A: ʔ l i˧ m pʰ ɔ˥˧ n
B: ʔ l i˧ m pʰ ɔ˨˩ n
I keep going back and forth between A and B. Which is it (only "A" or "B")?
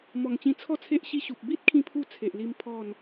A